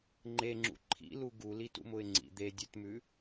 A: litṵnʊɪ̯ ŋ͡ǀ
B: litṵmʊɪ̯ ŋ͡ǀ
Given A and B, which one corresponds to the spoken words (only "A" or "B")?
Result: B